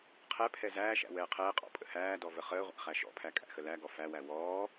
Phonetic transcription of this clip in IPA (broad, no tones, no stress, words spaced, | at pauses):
qʰɛpʰɛ zæːʃæ̰ wɛːqʰɛːqʼɔ̰ pʼə̰hæːdɔ vəχəːʁʷæ̰ χæʃɔ̰pʰæ kʼæ̰xəlæɡɔ fæwæ wɔː